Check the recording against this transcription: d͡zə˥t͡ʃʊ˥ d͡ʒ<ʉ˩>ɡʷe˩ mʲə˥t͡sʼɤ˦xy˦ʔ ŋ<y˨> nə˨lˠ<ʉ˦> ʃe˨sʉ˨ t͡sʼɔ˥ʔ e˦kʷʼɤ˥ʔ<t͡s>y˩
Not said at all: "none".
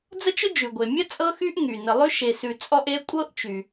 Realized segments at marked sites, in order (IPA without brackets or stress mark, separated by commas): ʉ˩, y˨, ʉ˥, t͡ʃ